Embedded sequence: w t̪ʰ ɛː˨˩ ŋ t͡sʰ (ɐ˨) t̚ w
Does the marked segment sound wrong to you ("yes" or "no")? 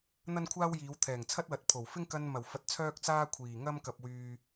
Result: yes